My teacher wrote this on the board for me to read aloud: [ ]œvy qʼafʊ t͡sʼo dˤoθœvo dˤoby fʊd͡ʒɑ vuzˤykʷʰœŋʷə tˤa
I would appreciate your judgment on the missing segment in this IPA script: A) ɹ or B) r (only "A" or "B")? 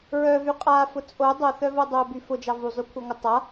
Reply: A